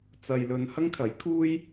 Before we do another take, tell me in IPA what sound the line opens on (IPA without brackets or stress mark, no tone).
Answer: t͡s